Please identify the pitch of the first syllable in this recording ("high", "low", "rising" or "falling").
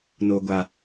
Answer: low